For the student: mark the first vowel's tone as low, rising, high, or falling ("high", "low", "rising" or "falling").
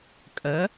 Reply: rising